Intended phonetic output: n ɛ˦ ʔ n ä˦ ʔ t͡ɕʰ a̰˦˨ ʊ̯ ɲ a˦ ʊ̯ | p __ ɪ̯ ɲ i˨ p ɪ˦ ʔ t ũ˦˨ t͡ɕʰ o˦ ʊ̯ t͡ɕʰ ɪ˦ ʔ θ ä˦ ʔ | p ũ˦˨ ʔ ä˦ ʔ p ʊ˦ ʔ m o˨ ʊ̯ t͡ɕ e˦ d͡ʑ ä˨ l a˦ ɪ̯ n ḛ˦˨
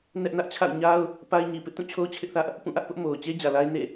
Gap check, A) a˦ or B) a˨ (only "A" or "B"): A